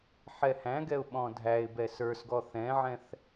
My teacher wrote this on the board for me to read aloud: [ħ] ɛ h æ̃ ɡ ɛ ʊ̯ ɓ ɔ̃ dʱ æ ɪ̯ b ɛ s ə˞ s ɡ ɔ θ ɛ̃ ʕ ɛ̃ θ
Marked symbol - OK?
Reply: yes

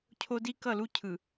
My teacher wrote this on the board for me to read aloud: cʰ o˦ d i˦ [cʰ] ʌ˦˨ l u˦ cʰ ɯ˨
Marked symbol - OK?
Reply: no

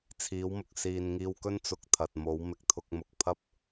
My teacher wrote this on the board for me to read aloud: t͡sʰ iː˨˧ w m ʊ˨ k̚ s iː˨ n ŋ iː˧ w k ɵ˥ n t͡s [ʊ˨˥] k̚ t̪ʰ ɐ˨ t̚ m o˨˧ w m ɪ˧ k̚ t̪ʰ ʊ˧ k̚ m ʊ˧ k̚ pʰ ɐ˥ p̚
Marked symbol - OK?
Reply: no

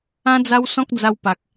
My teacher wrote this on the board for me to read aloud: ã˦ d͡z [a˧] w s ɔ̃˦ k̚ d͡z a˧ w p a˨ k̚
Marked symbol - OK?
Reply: no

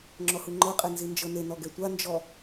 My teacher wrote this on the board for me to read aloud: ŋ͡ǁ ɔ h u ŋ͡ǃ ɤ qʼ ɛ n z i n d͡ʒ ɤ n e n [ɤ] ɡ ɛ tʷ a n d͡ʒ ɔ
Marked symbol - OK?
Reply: no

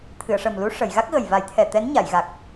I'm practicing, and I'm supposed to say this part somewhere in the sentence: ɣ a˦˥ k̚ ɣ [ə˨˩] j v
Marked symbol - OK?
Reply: yes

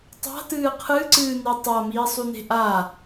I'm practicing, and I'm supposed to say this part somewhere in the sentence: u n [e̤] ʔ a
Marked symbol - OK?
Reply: yes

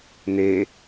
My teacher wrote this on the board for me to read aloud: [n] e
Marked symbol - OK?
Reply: yes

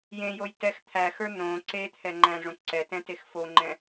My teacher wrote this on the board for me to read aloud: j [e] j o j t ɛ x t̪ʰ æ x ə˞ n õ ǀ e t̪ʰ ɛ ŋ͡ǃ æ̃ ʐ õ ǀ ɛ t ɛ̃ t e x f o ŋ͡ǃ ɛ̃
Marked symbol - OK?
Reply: no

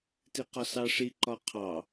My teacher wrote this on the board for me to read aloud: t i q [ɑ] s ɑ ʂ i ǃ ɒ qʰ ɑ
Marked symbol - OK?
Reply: no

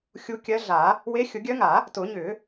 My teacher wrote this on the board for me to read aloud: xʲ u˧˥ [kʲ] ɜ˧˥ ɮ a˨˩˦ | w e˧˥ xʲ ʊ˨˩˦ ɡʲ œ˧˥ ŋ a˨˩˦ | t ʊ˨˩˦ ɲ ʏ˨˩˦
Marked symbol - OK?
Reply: yes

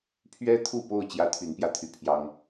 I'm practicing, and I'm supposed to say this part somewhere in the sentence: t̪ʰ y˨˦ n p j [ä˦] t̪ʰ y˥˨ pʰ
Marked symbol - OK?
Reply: no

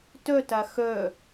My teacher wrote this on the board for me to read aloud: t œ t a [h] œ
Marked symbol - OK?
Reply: no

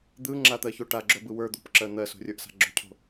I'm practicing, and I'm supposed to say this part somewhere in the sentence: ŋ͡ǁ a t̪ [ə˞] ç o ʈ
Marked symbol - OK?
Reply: no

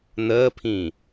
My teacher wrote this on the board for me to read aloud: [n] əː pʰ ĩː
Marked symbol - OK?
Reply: yes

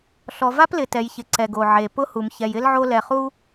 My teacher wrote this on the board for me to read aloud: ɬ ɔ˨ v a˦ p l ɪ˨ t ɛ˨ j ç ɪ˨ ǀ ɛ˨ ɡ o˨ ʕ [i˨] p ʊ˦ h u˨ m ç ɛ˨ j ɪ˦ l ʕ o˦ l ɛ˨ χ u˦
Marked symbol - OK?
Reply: no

